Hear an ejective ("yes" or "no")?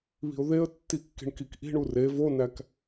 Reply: no